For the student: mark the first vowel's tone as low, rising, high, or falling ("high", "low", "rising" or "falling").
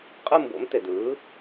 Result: falling